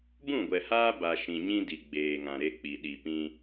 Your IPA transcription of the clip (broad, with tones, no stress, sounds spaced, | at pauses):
b ũ˦˨ ɡʷ ɛ˨ h aː˦ b a˨ ʃ ĩ˨ ɲ ĩ˦ d i˨ ɡ͡b eː˨ ŋ ã˨ ɾ e˦ k͡p i˨ ɗ i˨ p ĩ˦